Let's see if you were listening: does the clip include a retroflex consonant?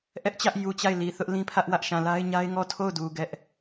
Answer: no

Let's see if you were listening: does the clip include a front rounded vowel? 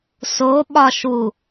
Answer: no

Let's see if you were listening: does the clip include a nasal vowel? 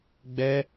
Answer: no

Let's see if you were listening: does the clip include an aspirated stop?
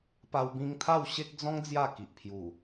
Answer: yes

